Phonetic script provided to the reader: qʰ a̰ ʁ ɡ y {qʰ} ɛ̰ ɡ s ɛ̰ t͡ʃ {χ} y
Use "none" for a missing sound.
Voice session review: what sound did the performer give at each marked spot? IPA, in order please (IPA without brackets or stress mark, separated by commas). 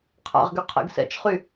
qʰ, χ